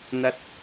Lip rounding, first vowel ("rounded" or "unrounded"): unrounded